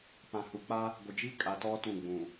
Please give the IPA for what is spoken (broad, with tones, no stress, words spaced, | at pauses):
pã˨hu˨k͡pa˦ | ɡʷɪ˨d͡ʒi˦ kʼa˨tɔ˦ tũ˦˨ɡ͡bũ˨